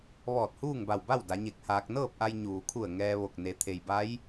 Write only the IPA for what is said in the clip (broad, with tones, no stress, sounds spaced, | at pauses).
ʋ ɔː˧˩ t̚ h uː˥˨ ŋ b a˧˩ w b a˥˨ w d a˩˧ ɲ e˧˩ k̚ h aː˧ k̚ n ɤː˥˨ p̚ ʔ a˧ j ɲ uː˩ kʰ u˧˩ ə̯ ŋ ɛː˧ ʋ o˧˩ k̚ n e˩˧ t̪ʰ e˩ j b a˧˥ j